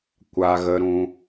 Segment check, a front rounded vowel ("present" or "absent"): absent